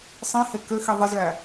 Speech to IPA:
sˤ ĩ h e k ø x i ðˤ ɯ z ɭ æ

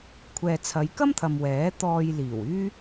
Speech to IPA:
kʷʰ ɛː˨ t͡sʰ ɐ˨˧ j k ɐ˥ m t̪ʰ ɐ˨ m w ɛː˨˥ t̪ ɔː˧ j l iː˨˩ w yː˥

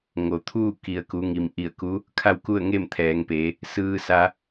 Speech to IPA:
ŋ o˩˧ t̪ʰ uː˥˨ k i˩ ə̯ k u˩˧ ŋ i˩ m ʔ i˧˩ ə̯ k u˧˥ | kʰ a˥˨ w k u˥˨ ə̯ ŋ e˥˨ m t̪ʰ ɛː˩˧ ŋ p eː˩˧ | s ɯː˧ s a˧

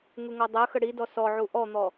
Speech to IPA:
ŋ u ŋ ɔ dˤ ɜ x ə ɽ i d ɔ s ɔ ʕ u ʔ ɔ n̪ ɔ

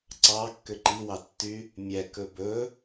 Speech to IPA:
ǀ ɑ kː ø ǃ i w ɑ tː y | mʲ ɛ k ɵ b ɵ

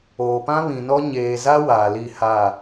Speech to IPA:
oː˨ p ã˦ β ĩ˨ n ɔ˦ ɲ eː˨ z a˦ w aː˨ l i˦˨ h a˦˨

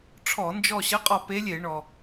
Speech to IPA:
ʈ͡ʂʰ ɔ˧˩˧ n d͡ʒ ɔ˦˨ ɕ ə˧˥ qʼ ɒ˦˨ p e˧˥ lʲ e˧˩˧ ɳ ɔ˩

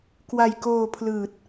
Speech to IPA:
k w a˧ j k oː˧ pʰ l ɯː˨˩ t̚

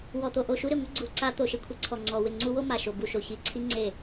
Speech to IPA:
w ɔ˨˩ t̪ o˨˩ ʔ o˥˩ ʃ u˥ ɾ ɪ˨˩ ŋʷ ɪ˥ ɡ͡ǀ u˨˩ ǀ a˥ t̪ o˨˩ ʃ ɪ˥˩ kʷʰ e˥ ǀʰ ɔ˨˩ ŋ͡ǀ ɔ˨˩ w ɪ˥˩ ŋ͡ǀ u˥ w o˥ m a˨˩ ʃ o˨˩ b u˥˩ ʃ o˨˩ ç i˨˩ ǀʰ i˥ ŋ͡ǀ e˥˩

